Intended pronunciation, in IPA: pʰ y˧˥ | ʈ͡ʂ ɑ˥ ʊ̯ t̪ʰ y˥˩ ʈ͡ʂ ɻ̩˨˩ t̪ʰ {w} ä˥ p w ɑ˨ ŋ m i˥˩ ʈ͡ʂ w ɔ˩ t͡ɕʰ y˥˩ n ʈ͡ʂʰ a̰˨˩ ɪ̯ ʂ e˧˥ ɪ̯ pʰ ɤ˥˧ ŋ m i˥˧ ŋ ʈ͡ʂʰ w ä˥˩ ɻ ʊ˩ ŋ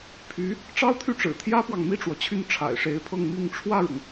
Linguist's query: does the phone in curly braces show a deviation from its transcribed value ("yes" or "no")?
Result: yes